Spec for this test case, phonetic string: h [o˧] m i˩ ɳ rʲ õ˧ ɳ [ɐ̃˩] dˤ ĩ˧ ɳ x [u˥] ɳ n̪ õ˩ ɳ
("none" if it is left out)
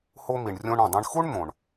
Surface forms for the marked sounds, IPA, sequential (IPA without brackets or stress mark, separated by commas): o˧, ɐ̃˩, u˥